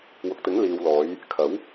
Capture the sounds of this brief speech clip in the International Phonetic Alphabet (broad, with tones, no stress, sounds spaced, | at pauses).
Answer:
w ʊ˨ k̚ t̪ ɪ˨˥ ŋ l iː˨ w l ɔː˨˧ j | kʰ ɐ˨˥ w